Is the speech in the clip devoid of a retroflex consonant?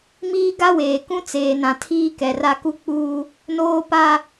yes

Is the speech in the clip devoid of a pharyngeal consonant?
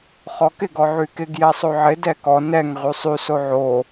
no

